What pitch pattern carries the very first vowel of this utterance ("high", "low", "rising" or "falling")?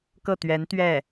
falling